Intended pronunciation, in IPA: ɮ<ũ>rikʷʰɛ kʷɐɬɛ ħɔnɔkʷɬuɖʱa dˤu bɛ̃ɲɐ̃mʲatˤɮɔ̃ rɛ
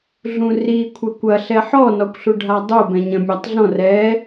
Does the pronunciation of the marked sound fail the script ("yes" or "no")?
no